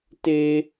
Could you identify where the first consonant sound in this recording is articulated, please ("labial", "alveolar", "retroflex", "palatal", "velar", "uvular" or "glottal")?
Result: alveolar